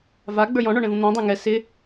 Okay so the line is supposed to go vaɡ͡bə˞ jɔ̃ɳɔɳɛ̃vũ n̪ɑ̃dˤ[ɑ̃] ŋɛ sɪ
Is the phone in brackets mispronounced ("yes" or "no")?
yes